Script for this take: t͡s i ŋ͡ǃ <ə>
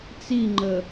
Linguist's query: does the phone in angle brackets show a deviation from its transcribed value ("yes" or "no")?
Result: no